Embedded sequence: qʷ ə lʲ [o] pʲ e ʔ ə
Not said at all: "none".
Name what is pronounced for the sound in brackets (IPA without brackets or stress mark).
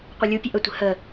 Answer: u